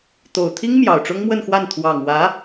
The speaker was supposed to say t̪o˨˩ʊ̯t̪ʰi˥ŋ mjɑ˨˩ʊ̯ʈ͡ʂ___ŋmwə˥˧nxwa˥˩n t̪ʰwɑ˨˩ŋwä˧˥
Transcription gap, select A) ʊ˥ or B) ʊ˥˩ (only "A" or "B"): A